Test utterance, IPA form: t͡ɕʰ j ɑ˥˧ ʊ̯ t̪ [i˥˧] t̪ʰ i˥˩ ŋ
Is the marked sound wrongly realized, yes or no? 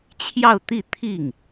no